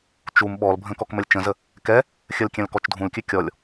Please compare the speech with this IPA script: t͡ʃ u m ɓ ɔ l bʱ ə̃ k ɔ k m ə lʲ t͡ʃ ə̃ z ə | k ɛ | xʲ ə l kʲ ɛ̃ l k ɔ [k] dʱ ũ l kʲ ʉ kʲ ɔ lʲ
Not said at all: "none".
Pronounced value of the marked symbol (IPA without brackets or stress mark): t͡ʃ